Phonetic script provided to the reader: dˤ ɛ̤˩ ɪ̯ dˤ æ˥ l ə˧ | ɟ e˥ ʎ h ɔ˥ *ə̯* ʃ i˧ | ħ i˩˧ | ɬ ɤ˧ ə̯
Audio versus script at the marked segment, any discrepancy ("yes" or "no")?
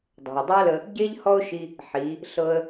yes